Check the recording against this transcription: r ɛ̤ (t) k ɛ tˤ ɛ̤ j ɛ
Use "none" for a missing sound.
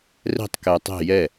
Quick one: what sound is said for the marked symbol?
tˤ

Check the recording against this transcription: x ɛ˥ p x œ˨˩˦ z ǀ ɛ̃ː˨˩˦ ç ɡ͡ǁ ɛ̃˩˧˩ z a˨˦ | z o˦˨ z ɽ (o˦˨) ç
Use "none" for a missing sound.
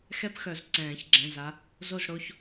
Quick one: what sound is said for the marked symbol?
o˩˧˩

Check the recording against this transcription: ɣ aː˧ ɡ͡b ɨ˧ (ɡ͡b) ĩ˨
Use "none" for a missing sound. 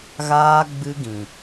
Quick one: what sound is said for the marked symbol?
ɡ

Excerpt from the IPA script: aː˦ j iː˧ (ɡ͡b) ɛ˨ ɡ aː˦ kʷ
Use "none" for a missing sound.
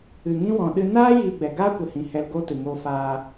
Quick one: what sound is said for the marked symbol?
ɡ͡b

